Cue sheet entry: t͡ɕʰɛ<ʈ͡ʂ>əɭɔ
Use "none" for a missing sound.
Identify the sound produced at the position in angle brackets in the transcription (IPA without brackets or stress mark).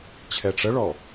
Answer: ʈ͡ʂ